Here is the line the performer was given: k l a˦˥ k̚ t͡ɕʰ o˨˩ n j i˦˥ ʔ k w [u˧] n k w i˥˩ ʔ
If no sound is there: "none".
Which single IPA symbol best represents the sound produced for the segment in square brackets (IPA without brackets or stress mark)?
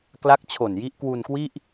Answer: u˧